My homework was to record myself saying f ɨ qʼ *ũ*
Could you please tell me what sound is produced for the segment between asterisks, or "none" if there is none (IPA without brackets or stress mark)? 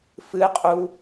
u